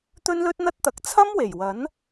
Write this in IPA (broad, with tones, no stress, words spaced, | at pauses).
t̪ɵ˥nlɵ˥t̚n̪ɐ˥t̚t̪ɐ˨˥k̚ t͡sʰɐ˥mwe˨˩jwɐ˨˥n